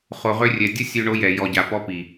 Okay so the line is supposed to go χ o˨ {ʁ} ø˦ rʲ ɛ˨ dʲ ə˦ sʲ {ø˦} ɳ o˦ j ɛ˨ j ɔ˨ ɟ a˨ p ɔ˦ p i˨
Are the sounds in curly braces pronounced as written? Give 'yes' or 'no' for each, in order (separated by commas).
yes, yes